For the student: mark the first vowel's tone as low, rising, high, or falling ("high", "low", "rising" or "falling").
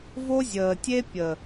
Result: high